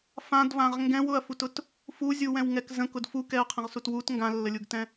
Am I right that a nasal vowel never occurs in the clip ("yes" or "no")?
no